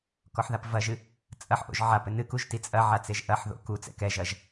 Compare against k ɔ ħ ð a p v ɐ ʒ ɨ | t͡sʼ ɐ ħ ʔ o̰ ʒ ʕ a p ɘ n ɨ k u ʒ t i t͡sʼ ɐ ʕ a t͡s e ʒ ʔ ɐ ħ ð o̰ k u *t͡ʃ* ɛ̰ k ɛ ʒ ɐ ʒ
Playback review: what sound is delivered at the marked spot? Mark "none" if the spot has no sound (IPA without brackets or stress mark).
t͡s